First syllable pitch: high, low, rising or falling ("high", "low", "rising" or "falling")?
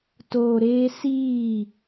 low